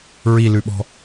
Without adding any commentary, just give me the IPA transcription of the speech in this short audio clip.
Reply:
ɹ i l ʉ ɓ ɔ̤

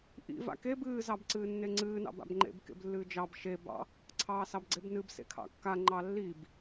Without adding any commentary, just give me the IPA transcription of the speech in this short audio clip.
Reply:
ʔ ḭ v a̰ k e b ɨː z ɑ b ǀ ɨː nː e ŋ͡ǀ ɨː n ɑ̰ b a̰ b ŋ͡ǃ ḛ b k ḛ b lː ɨː d͡ʒ ɑ b ʃ e b ɑ̰ | ǀʰ ɑː s ɑ b ɡ͡ǀ e b n ɨ b s ḛ kʰ ɑ̰ kː a ŋ͡ǃ ɑ lː i b

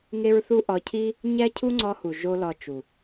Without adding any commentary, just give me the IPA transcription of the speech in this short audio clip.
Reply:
ŋ e˦ ɹ θ u˦ ʔ ɒ˧ cʰ i˦ | ɲ æ˦ cʰ u˦ ŋ͡ǀ ɒ˧ h u˨ ʒ o˦ l ɒ˧ t͡ʃ u˨

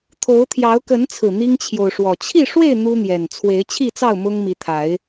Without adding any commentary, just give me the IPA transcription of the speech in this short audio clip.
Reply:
t̪ʰ o˨˦ ʊ̯ t̪ʰ j ɑ˨˦ ʊ̯ k ə˨˦ n t͡sʰ ɹ̩˨˩ n̪ i˦ ŋ t͡ɕʰ j o˨ ʊ̯ ʂ w ɔ˨˩ t͡ɕʰ i˥˨ ʂ w e˥˨ ɪ̯ n̪ u˦ n̪ j ɛ˨˩ n t͡sʰ w e˨˦ ɪ̯ t͡ɕʰ i˥˨ t͡s ɑ˥˨ ʊ̯ m ʊ˦ ŋ m i˨˦ t̪ʰ a˨˦ ɪ̯

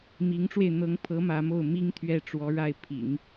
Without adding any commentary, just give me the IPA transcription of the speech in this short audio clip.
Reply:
m i˧˥ ŋ ʈ͡ʂ w e˧ ɪ̯ n̪ ɤ˧˥ ŋ pʰ ɤ˧˥ m ä˧˥ m o˥˩ ʊ̯ m i˥ ŋ t̪ʰ ɥ ɛ˥˩ ʈ͡ʂ w ɔ˧˥ ɻ a˥˩ ɪ̯ pʰ ḭ˨˩˦ ŋ

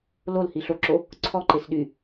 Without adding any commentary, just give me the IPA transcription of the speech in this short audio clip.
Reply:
l o l h i ɬ o ǁ o | ǀʰ ɔ ǃ e s ɗ y

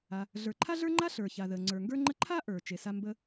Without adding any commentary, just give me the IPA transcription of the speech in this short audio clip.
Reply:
a˩ | ɮ ə˞˩ ǃʰ a˥ ɮ ə˞˥ ŋ͡ǃ a˥ ɬ ə˞˩ ç a˩ ð ə˩ ŋ͡ǀ ə˞˩ ŋ ɡ ə˞˥ ŋ͡ǃ ə˥ ǃʰ a˥ ʔ ə˞˩ t͡ʃ e˩ s a˥ m b ə˥

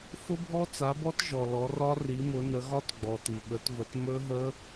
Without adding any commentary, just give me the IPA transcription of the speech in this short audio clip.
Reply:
f ʊ˦˥ bʱ ɔ˦˥ t͡s a˨˦ b ɔ˦˥ t ʒ ɔ˨ l ɔ˨˦ r ɒ˦˥ r i˨˦ m ʊ˨˦ n ə˨˦ ɣ ɒ˦˥ t ɡ͡b ɔ˨ t i˨ ɓ ə˨˦ t v ə˨˦ t m ɵ˦˥ ɦ ə˦˥

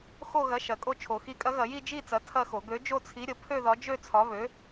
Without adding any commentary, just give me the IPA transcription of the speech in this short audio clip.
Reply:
x o˥˧ ɣ ɐ˨˥ ʃ ɐ˨˩˦ kʼ o˥˧ t͡ʃʰ o˨˩˦ x i˨˥ kʼ ɐ˨˥ ɣ ɐ˨˩˦ j i˥˧ d͡ʒ i˥˧ t͡s ɐ˨˥ tʰ ɐ˥˧ x o˨˩˦ ɡ ø˨˥ d͡ʒ o˥˧ t͡sʰ i˨˥ ɾʲ ə˨˩˦ pʰ ø˥˧ ð ɒ˨˥ d͡ʒ ø˥˧ t͡sʰ ɒ˨˥ β ø˨˥

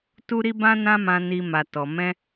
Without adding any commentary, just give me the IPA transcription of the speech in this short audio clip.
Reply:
t u˦ ɾ i˦ b ã˦ n ã˦ m ã˧ n i˧ m a˨ t ɔ˨ m ɛ̃˧

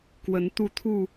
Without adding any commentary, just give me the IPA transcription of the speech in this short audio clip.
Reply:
k w ə˨˦ n t̪ u˥˨ t̪ʰ u˥˨

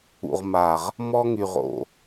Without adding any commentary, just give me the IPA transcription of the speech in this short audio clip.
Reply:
ṵ˨ ʁ m a˨ ʁ | m ɔ˦ ŋ y˨ ʁ o̰˨

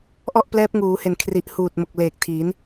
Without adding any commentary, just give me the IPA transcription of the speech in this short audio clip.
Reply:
ʔ ɔ˥˩ ʔ p l ɛː˦˥ p̚ ŋ uː˩˦ h e˨˩ n kʰ r i˨˩ ʔ h uː˨˩ t̚ m o˨˩ k̚ l eː˨˩ k̚ tʰ i˩˦ n

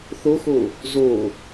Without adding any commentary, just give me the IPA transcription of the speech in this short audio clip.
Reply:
θ o x o | z o

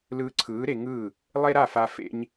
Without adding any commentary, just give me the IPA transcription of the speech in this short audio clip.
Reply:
l ɯː˧ ǀʰ ɯː˩˥ ɾ e˧ ŋ ɯː˥˩ | lˠ e˥ ɾ a˥˩ f a˧ f ḛ˥ ɲ

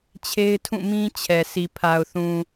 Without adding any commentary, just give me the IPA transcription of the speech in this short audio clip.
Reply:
t͡ɕʰ e˦ ɪ̯ tʰ ũ˦˨ m ĩ˦ t͡ɕʰ ɛ˨ s i˨ pʰ a˨ ʊ̯ θ ũ˨

